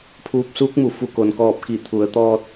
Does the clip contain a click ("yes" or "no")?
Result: no